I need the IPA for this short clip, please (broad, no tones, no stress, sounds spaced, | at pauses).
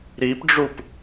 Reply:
ɾ i p ɖ͡ʐ u p